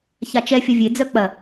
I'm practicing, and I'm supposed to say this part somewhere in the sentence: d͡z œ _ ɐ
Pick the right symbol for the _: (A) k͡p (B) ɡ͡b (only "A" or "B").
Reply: A